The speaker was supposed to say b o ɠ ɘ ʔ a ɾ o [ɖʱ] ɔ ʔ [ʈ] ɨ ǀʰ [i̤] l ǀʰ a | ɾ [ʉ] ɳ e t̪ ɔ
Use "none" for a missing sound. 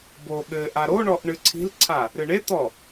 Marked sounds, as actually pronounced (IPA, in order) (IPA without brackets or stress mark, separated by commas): ɳ, ɳ, i̤, ɨ